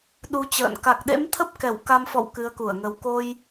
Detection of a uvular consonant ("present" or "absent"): absent